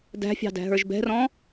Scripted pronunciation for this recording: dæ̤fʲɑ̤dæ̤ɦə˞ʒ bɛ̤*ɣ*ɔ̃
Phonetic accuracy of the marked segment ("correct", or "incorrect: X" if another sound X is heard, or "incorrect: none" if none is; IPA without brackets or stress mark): incorrect: r